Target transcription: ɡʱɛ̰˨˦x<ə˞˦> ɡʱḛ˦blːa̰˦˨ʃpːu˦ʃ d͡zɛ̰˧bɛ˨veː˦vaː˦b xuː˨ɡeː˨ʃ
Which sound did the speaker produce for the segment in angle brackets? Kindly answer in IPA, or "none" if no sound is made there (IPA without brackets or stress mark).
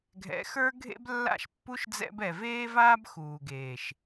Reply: ə˞˦